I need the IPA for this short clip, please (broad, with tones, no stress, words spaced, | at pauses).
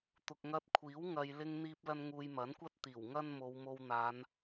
t̪ʊ˨k̚ŋɐ˧t̚kʷʰiː˨˥w ŋɐ˨j lɪ˧ŋn̪iː˧p̚ lɐ˧nŋuː˨j mɐ˨˥nkʷɐ˥t̚ t̪iː˨˩wŋɐ˥n mo˨˧wmo˧wn̪aː˨˧n